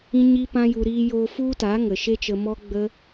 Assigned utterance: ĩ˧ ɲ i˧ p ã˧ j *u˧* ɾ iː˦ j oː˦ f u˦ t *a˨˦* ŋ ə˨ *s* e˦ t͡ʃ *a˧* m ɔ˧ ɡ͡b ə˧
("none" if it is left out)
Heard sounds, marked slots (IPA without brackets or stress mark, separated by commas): u˧, a˨˦, ʃ, ə˧